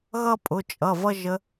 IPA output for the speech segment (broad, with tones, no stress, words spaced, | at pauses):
ɣʌ˥pʼʊ˩˧˩t͡ʃʼʌ˩˧˩ vʌ˥ʒə˧˥